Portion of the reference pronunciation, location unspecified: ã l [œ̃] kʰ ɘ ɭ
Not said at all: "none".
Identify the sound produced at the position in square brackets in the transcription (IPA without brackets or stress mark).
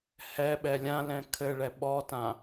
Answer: ɛ̃